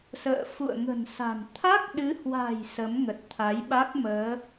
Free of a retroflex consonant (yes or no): yes